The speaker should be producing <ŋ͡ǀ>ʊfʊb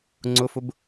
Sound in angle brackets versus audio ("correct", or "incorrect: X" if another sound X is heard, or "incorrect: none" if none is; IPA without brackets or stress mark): correct